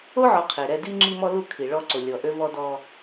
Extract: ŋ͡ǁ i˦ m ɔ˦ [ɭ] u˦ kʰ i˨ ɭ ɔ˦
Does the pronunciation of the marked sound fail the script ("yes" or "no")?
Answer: yes